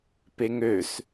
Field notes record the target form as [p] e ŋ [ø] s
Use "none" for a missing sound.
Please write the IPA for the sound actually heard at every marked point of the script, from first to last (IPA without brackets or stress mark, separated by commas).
p, ø